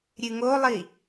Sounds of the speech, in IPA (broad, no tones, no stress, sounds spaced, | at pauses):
ɾʲ ɨ ŋ o lˠ i